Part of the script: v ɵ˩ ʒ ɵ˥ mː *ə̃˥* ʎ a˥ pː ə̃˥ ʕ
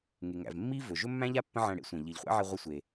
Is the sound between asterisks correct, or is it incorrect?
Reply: incorrect